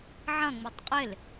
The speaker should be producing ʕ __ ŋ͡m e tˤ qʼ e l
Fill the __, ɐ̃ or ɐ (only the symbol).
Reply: ɐ̃